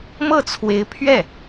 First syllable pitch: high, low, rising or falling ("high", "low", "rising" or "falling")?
falling